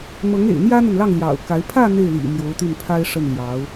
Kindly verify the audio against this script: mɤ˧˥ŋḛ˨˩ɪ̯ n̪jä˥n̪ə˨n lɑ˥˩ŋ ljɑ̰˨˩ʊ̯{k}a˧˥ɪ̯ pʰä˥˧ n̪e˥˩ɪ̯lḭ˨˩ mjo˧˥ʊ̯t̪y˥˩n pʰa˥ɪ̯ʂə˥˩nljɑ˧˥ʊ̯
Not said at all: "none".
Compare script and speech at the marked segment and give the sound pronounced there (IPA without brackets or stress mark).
k